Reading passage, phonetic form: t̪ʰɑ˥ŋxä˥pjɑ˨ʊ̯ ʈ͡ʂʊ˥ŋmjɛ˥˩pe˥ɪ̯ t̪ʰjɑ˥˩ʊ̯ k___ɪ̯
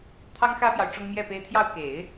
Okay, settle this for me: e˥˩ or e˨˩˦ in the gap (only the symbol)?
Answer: e˨˩˦